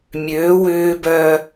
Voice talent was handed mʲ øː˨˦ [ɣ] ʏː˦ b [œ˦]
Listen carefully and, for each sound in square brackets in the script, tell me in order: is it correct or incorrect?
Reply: incorrect: w, correct

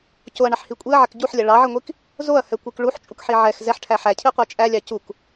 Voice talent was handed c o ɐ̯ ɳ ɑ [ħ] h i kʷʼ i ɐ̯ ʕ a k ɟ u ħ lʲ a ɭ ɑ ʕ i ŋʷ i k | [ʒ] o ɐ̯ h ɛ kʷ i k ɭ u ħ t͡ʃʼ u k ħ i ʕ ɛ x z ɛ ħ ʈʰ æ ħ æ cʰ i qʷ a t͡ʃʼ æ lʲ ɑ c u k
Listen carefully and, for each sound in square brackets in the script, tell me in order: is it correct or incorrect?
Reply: correct, incorrect: z

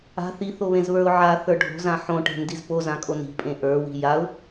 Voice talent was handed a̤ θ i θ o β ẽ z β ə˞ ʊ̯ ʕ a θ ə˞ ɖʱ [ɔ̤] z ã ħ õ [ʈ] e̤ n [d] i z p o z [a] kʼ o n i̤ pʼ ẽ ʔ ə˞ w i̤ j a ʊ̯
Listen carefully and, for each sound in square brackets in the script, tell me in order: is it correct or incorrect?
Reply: incorrect: o̤, correct, correct, incorrect: ã

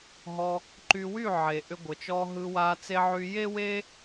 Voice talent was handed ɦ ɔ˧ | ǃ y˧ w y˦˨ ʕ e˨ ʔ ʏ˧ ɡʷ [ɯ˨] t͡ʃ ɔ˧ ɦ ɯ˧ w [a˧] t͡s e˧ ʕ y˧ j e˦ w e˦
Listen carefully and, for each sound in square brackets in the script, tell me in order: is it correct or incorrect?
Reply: incorrect: ə˨, correct

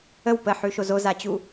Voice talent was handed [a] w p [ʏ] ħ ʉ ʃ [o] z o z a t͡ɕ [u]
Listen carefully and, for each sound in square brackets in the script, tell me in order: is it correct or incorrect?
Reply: incorrect: ə, incorrect: ə, correct, correct

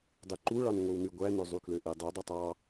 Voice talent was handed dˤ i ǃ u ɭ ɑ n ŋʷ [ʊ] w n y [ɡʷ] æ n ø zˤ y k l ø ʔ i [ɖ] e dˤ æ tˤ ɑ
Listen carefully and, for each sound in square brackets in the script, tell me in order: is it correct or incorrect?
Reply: incorrect: ɯ, correct, incorrect: dˤ

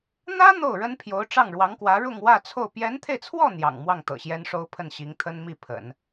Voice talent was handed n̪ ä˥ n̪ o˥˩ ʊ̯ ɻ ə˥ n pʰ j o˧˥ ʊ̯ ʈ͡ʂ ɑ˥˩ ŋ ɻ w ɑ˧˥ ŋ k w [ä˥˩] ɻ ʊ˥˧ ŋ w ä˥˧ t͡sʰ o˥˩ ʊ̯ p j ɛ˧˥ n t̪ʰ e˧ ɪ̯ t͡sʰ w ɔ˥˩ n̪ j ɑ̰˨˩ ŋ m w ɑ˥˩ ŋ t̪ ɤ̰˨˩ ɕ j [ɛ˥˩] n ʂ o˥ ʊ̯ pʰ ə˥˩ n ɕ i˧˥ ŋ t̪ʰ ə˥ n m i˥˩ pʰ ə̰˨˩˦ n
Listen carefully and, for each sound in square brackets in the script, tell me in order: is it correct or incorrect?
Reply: incorrect: ä˧˥, incorrect: ɛ˥

